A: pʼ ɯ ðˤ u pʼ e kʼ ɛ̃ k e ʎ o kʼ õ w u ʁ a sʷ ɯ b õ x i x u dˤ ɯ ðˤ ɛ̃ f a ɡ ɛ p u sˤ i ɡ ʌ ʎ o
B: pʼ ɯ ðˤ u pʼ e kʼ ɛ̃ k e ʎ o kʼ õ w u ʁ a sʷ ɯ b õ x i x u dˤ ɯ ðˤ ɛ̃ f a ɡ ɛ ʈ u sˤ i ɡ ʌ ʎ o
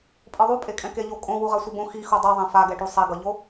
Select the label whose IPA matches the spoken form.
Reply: B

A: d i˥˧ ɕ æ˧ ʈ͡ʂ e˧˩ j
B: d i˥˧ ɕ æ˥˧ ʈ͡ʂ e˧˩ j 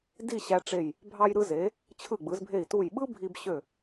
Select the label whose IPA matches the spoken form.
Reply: A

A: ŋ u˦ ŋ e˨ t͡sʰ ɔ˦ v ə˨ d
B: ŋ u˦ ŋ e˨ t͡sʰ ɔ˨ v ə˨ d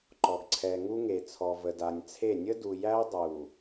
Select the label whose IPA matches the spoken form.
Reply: B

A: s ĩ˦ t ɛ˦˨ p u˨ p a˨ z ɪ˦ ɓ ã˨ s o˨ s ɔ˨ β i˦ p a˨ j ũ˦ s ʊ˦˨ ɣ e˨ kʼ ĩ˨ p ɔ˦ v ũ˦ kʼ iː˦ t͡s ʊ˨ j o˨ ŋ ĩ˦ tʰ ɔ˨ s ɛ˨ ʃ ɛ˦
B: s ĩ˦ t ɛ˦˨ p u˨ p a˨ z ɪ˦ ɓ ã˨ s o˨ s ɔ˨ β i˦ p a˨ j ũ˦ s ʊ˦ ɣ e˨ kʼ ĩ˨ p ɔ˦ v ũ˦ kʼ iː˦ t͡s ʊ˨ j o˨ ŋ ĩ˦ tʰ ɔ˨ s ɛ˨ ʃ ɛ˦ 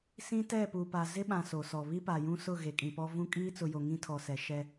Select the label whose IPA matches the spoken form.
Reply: A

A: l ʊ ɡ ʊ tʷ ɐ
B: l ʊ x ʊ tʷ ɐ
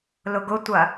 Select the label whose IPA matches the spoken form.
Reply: A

